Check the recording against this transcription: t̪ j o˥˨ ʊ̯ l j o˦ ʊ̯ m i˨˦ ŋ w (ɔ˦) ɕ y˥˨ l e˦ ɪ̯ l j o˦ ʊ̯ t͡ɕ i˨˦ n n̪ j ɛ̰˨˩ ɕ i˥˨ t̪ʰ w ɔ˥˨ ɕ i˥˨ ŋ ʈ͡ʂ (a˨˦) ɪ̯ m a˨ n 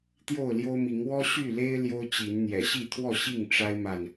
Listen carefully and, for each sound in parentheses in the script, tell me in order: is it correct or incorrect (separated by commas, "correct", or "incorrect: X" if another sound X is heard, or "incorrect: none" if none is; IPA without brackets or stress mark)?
correct, incorrect: a˦